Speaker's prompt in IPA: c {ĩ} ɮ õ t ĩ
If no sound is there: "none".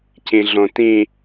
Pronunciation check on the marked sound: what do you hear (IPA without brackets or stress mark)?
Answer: ĩ